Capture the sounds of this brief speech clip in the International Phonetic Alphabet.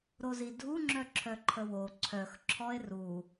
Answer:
ɾ o z i dʱ u ŋ͡ǁ œ ǁʰ œ ǃʰ ə w o ǀʰ œ x ǁʰ ɔ e̯ r u

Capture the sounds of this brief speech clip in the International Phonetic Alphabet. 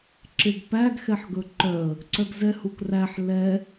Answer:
ǁ e ɡ p æ ɡ x ɛ ħ ɡ ɵ ǃ œ ə̯ | ǀ œ ɡ z ɛ h u k r æ ħ l ɛ

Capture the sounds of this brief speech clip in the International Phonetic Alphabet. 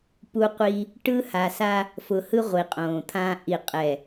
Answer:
p u˦ qʷ i˦ | ʈ ɯ˦ h a˨ s a˦ | f ʊ˨ h ɯ˦ ʁʷ i˨ qʼ õː˨ t̪ʰ ãː˦ ʔ i˨ qʼ ɛ˨

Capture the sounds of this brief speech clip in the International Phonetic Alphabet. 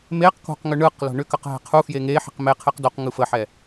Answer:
m e q k o̤ q ŋ ʏ ɳ ɯ q l o̤ ɳ ʏ k ə q ɦ e̤ qʰ u f j e ŋ e ħ i̤ q m e qʰ e q d o q ŋ ɯ f ə ħ ɛ

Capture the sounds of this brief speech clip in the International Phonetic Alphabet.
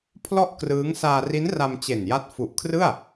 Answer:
pʰ l ɔ˥˩ ʔ k r ɯː˦˥ ŋ s aː˧ r i˦˥ n r a˧ m t͡ɕ e˨˩ n j a˦˥ t̚ f u˨˩ ʔ kʰ r ɯ˥˩ a̯

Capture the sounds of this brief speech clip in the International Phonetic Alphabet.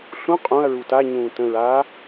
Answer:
ɬ ũ qʼ ũ ɐ̯ ɹ u t a ɲ ũː t ə̃ ɹ aː

